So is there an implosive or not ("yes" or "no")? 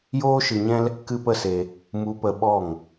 yes